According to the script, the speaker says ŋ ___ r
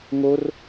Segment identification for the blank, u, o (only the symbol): o